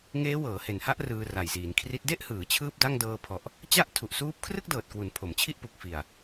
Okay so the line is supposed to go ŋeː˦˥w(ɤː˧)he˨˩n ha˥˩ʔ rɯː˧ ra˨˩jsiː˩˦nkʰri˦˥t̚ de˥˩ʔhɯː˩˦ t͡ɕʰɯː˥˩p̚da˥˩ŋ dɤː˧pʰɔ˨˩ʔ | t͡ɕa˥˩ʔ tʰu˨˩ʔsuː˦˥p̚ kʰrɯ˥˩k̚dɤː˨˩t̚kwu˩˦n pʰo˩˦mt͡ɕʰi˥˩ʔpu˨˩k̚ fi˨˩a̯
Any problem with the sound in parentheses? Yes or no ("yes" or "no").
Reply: yes